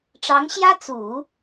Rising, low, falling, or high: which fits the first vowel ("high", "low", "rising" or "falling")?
rising